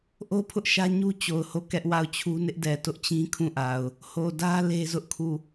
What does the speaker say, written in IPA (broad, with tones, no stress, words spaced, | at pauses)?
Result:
ʔo˦pʰʊ˦ʔʃä˦ ɲu˦t͡ɕo˨ʊ̯ ho˦˨kɛ˦ʔ wa˦˨ʊ̯t͡ɕʰu˦ nɪ˦ʔdɛ˨ tʊ˦ʔt͡ɕĩ˦ kʰũ˦˨ʔa˨ʊ̯ | ho˨dä˦ le˦zʊ˦ʔkʰu˦˨